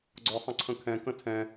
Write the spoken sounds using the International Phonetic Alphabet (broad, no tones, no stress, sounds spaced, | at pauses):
ɡ͡ǀ ɔ sˤ ə̃ ǀʰ ə̃ kʰ ɛ̃ k ə̃ tʰ ɛ̃